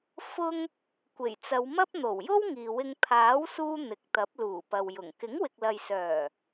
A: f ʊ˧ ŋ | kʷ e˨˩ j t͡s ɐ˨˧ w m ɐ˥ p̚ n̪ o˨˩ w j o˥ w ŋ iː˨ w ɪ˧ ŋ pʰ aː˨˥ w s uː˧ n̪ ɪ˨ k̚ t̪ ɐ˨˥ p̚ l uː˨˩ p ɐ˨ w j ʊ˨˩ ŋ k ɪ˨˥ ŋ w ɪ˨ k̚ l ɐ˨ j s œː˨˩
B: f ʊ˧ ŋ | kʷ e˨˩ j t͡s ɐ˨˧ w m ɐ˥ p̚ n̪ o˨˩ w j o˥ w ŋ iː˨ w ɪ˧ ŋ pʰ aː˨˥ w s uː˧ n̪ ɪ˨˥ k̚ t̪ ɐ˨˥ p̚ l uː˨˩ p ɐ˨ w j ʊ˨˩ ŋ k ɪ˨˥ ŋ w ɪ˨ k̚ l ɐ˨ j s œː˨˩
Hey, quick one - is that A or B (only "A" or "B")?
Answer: A